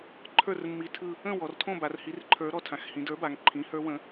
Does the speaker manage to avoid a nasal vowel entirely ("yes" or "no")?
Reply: no